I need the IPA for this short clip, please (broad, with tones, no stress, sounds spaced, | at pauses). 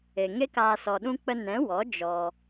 e˨ ŋ e˦ k aː˧ s ɔ˨ ɗ ũ˧ k͡p ə˧ n ɛ̃˨˦ w ɔ˨˦ d͡ʒ ɔ˧